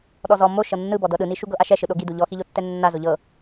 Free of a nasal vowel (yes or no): yes